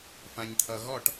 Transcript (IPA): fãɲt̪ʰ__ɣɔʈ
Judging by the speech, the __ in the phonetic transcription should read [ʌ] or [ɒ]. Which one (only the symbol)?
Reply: ʌ